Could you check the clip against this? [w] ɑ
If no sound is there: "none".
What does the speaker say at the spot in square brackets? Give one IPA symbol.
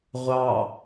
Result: ʁʷ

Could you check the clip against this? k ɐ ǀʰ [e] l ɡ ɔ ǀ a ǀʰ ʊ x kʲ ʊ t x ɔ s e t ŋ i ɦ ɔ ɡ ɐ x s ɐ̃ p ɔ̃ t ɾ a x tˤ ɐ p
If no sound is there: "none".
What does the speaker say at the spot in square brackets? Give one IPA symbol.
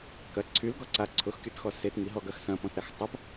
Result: y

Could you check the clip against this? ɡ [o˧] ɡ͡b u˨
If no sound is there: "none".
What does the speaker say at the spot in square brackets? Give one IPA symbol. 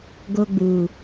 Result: o˧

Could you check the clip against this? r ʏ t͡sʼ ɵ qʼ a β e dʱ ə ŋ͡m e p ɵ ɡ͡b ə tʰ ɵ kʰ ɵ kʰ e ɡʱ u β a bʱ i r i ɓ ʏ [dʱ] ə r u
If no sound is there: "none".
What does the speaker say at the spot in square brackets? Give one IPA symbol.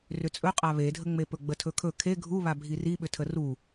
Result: tʰ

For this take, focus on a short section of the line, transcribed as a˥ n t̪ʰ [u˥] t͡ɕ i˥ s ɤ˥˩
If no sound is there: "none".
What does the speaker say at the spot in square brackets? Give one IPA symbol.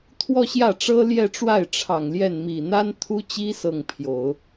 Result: u˥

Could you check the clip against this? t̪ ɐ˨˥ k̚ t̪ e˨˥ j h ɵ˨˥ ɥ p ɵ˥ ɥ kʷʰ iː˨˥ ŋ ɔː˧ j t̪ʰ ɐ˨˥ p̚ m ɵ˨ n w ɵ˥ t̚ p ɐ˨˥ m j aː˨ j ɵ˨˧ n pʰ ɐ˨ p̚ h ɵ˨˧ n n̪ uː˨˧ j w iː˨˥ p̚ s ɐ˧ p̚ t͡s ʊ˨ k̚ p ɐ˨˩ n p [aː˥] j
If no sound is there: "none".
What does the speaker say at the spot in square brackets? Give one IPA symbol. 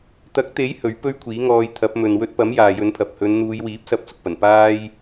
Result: aː˥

